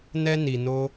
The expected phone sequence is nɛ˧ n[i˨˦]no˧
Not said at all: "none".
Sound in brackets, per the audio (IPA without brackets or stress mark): i˨